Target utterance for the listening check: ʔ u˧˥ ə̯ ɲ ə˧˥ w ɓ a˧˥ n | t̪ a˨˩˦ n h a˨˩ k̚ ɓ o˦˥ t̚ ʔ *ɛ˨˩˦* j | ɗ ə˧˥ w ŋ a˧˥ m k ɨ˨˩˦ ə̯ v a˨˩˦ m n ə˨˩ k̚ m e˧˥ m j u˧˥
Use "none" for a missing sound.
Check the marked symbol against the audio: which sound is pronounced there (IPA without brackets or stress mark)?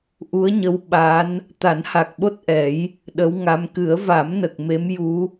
ɛ˨˩˦